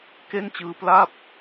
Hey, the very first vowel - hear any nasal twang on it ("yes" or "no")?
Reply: no